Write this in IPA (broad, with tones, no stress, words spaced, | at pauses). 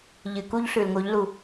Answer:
ʎɨ˩˧ku˥ʎ ɬʉ˩lŋo˨˥ʎlu˩